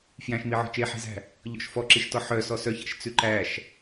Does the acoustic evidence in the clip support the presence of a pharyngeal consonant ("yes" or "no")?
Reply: yes